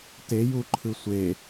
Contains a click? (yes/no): yes